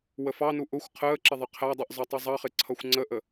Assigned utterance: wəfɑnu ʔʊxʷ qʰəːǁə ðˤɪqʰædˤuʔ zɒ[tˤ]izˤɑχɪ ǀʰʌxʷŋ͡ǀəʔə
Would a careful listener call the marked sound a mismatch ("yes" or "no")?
no